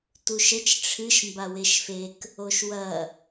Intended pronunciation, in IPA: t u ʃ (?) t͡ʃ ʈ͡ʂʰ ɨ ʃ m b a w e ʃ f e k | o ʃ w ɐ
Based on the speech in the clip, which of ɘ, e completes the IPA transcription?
ɘ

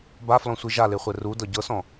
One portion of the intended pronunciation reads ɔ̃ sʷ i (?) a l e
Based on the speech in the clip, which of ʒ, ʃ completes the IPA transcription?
ʒ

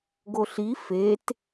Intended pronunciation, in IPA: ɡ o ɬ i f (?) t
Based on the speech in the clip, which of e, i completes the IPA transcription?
e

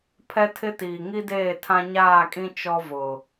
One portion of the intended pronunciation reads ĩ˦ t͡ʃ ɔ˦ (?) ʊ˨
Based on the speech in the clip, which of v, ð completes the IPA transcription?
v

